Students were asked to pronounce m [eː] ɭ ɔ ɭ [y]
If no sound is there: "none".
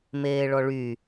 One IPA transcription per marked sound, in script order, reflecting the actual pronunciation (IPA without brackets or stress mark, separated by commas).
eː, y